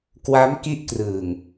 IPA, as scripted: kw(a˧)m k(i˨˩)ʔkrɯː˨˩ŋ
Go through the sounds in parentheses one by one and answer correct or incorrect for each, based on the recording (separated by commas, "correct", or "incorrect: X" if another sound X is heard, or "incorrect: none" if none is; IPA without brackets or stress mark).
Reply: incorrect: a˦˥, incorrect: i˦˥